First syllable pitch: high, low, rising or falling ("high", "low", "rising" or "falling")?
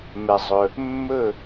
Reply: low